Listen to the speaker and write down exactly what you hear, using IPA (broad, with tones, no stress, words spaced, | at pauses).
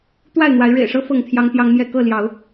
t̪wa˥˨ɪ̯n̪wa˨˦ɪ̯ ɻḛ˨˩ɪ̯ʂɤ˦ fɤ˥˨ŋt̪ʰjɑ˦ŋt̪jɑ˦ŋmjɛ˥˨ kɤ˥˨ljɑ˨˦ʊ̯